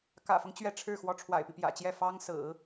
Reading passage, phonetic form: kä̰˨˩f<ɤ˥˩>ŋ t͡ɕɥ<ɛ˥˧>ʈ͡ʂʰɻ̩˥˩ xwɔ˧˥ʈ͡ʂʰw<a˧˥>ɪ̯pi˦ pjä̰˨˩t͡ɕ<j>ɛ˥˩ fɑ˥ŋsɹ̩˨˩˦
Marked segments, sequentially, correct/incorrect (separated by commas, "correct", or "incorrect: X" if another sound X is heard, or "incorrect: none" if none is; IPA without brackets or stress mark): incorrect: ɤ˦, correct, incorrect: a̰˨˩, correct